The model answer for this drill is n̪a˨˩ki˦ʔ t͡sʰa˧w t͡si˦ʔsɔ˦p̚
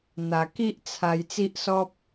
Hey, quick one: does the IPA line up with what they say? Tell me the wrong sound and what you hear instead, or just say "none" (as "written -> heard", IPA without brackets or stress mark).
w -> j